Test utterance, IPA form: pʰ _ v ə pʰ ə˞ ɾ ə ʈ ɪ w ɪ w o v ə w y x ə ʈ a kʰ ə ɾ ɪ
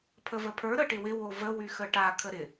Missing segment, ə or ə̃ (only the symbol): ə